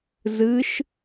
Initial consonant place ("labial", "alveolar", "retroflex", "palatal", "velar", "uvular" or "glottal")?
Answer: alveolar